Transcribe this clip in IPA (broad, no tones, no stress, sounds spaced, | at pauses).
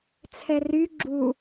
t͡sʰ ɛ r y ɡ͡ǁ u